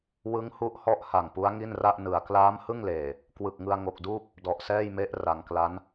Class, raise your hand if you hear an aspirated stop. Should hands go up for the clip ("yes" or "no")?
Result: no